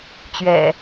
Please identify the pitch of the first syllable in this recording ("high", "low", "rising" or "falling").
low